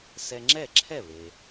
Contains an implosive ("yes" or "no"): no